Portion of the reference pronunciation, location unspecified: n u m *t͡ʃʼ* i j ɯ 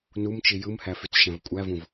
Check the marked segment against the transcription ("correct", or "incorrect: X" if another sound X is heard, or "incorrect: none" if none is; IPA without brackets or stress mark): incorrect: t͡ʃ